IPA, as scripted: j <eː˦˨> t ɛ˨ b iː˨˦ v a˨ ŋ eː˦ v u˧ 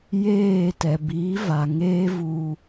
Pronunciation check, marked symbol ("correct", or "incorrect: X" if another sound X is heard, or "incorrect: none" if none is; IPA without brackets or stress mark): correct